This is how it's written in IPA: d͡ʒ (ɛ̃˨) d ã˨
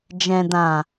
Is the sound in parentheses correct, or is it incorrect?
correct